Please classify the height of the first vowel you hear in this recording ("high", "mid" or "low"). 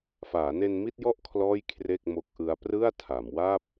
low